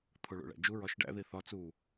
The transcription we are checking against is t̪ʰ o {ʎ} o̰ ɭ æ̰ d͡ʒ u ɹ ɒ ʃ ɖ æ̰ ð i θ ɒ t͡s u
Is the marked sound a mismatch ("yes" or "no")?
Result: yes